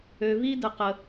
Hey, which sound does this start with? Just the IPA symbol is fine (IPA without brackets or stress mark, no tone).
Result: ø